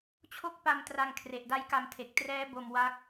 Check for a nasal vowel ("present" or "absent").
absent